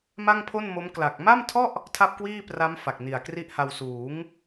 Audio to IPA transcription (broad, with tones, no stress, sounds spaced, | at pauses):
m a˥˩ ŋ pʰ o˥˩ n m o˦˥ m k l a˨˩ k̚ m a˥˩ m tʰ ɔ˥˩ ʔ | tʰ a˥˩ p̚ k w iː˥˩ p r a˦˥ m f a˨˩ k̚ n i˨˩ a̯ k r i˥˩ ʔ h a˧ w s uː˩˦ ŋ